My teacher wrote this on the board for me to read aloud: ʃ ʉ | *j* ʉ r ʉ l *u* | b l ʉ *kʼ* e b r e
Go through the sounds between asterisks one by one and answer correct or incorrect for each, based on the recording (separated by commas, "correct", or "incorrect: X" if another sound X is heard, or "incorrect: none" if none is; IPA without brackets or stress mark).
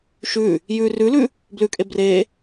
correct, incorrect: ʉ, correct